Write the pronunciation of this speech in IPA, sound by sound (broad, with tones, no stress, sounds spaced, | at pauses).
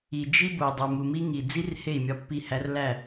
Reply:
i˨ d͡ʒ i˦ b o˨ dˤ u˨ m u˨ m i˦ ŋ i˨ d͡z i˦ r h e˦˨ i̯ mʲ ɒ˦ pː i˦˨ h æ˦ r l æ˦˨